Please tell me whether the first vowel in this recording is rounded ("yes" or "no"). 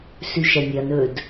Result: yes